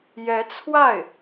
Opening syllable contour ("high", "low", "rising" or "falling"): rising